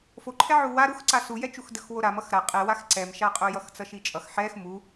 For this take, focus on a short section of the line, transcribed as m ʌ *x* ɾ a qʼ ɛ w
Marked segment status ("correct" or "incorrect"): correct